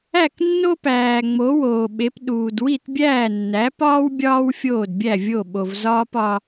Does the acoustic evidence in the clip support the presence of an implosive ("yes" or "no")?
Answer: yes